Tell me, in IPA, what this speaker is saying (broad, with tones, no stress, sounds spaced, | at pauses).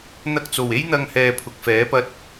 n̪ ɐ˧ k̚ t͡s o˨˩ w e˥ j n̪ ɐ˧ ŋ h ɛː˧ pʰ ʊ˨ k̚ f ɛː˨˥ p ɐ˧ t̚